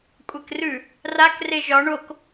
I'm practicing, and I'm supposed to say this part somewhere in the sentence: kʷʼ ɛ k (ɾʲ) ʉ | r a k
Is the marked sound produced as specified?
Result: no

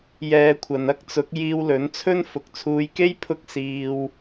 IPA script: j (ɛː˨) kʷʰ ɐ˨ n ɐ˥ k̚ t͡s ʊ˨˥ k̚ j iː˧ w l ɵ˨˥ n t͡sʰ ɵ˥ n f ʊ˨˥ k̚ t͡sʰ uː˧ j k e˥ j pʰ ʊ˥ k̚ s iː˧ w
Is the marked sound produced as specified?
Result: no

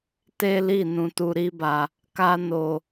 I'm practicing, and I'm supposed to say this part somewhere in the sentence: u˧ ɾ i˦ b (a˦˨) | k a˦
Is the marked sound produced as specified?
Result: no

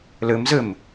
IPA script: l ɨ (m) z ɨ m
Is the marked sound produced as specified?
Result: yes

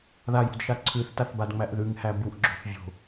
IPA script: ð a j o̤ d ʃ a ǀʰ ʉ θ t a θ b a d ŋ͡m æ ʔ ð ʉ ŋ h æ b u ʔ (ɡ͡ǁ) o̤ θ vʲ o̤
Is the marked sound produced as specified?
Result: yes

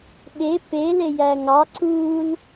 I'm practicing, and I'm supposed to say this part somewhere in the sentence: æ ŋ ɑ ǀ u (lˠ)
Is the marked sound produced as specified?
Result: no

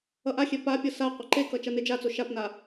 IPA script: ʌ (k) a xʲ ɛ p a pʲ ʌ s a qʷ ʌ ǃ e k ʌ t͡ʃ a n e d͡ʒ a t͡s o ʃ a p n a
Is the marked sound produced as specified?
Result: no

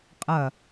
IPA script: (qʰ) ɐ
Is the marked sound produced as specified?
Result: no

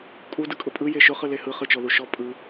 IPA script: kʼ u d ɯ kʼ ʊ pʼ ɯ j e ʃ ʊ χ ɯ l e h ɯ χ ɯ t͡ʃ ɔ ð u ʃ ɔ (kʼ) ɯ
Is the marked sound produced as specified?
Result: no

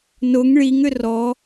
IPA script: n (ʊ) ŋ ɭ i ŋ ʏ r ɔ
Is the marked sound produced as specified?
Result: yes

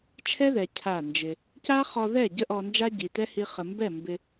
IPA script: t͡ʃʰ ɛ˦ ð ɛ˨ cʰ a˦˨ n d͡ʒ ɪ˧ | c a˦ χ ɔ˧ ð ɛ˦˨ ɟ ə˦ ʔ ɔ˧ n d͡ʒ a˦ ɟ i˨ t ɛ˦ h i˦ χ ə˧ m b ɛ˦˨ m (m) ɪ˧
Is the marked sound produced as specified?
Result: no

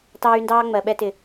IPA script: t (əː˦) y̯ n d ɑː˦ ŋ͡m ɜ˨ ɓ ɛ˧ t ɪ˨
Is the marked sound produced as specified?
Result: no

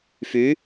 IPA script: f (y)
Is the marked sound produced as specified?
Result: yes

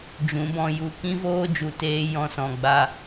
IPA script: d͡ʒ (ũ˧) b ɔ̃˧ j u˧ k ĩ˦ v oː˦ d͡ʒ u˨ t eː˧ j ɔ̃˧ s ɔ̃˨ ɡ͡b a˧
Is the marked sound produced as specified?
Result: no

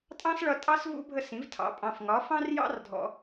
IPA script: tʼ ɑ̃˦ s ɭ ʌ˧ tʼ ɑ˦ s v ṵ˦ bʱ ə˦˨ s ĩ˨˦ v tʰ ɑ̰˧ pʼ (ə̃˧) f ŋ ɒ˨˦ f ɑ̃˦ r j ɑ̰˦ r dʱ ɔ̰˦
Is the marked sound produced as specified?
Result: no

